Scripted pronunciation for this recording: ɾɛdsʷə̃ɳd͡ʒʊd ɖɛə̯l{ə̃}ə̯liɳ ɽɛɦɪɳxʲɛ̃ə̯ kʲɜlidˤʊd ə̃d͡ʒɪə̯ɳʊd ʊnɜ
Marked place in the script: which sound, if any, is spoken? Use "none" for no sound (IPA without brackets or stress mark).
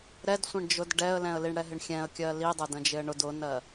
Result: ɛ̃